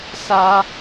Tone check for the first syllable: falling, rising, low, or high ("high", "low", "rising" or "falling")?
high